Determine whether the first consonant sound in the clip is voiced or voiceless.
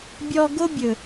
voiced